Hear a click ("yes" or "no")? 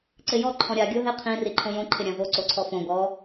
yes